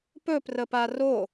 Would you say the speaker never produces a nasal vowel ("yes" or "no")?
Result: yes